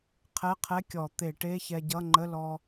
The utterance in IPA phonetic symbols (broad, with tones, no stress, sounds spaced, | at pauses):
qʰ ɛ˧˥˧ qʰ ɛ˧˥˧ kʲ ɔ˧˩˧ t̪ e˧˩˧ ʈ e˧˥˧ ç ɛ˧ ɟ ʌ˧˥˧ ŋ͡ǃ ə˧˥˧ l ɔ˧